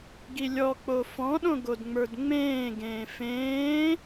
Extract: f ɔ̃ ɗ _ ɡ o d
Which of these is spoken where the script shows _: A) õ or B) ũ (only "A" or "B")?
A